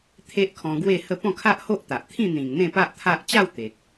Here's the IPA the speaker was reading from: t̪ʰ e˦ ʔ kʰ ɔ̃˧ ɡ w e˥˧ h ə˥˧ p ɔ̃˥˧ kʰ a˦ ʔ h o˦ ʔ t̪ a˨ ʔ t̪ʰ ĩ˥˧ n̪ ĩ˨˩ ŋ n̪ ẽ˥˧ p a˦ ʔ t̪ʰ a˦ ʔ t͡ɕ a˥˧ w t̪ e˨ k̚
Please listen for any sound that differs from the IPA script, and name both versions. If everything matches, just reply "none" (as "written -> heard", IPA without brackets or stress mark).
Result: none